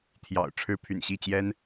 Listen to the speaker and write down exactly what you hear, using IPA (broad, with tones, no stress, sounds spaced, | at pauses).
t̪ʰ j ɑ̰˨˩ ʊ̯ ʈ͡ʂʰ ɻ̩˦ pʰ y̰˨˩ n ɕ i˥˨ t͡ɕ j ɛ˦ n